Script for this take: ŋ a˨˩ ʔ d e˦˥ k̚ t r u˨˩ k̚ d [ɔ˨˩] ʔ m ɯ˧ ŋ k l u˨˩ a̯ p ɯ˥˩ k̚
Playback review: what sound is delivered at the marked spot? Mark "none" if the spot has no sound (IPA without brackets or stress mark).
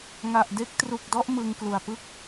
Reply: ɔ˦˥